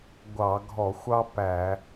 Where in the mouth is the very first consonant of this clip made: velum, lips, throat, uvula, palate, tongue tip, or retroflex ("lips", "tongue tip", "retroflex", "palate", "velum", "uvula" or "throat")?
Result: velum